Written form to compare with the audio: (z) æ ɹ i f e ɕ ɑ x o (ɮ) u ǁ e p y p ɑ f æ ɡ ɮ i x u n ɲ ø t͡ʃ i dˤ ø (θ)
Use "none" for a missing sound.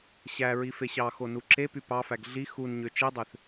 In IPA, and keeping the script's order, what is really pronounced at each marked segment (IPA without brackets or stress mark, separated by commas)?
ɕ, n, θ